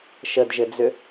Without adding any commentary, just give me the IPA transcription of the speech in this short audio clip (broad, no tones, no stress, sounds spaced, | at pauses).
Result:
ʃ ə d ʒ ɘ d͡z ʏ